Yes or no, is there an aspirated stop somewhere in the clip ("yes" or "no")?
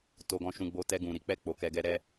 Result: no